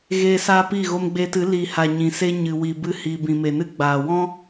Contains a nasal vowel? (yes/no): yes